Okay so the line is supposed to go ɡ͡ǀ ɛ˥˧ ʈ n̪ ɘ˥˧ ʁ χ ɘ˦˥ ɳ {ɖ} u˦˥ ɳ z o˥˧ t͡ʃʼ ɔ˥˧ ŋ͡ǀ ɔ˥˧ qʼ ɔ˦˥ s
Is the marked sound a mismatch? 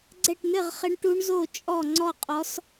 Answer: yes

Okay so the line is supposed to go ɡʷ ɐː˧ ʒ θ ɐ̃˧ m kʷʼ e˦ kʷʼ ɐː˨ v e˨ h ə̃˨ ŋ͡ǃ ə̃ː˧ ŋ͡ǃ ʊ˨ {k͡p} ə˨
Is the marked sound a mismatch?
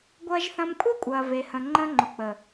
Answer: no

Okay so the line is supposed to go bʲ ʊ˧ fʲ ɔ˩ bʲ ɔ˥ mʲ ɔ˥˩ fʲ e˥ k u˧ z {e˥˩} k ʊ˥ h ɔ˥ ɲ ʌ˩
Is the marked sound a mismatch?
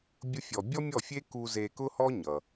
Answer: yes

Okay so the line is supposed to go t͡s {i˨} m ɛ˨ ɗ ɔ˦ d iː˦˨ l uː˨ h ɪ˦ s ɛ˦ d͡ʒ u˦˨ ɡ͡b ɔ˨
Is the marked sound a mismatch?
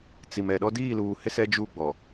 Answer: no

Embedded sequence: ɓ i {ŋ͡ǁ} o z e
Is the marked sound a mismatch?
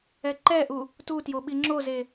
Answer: no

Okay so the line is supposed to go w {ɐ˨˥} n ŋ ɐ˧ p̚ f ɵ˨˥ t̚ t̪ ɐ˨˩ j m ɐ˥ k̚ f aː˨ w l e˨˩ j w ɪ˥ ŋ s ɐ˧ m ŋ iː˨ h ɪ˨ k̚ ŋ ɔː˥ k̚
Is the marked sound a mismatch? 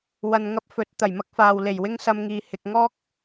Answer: yes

